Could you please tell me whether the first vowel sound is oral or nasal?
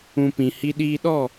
nasal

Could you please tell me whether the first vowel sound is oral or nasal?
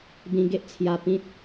nasal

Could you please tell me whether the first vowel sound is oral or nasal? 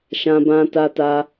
nasal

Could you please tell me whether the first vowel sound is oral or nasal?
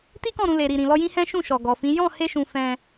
oral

